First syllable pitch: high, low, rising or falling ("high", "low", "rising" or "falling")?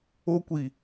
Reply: high